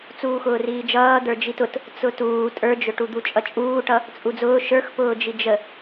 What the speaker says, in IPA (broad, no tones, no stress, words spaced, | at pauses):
t͡suːxʊːriːd͡ʒʌː d̪ə˞d͡ʒitʊt | t͡sʊtuː tʼə˞d͡ʒʊʈud̪u t͡ʃʼʌt͡ʃʼuːʈʌ | t͡sʼud͡zʊː ʃə˞xpʊːd͡ʒi d͡ʒə